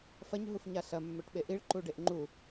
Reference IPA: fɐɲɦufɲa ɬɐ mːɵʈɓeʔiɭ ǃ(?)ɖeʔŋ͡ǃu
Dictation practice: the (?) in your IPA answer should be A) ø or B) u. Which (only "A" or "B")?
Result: B